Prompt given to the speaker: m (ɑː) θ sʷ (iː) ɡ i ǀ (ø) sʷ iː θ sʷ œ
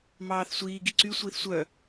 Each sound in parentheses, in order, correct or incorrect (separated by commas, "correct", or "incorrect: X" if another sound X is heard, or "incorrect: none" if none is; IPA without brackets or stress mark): correct, correct, incorrect: y